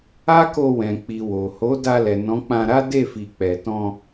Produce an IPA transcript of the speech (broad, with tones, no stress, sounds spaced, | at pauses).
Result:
a˦ k o˧ w ɛ̃˨ k͡p i˨ w o˨ h o˨˦ d a˧ l ɛ˨ n ɔ̃˨˦ k͡p ã˧ ɾ a˦ d e˦˨ f i˨ k͡p ɛ˨ t ɔ̃˧